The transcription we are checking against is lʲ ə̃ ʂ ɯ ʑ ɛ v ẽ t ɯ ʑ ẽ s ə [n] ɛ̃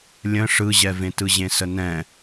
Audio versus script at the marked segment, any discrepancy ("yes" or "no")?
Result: no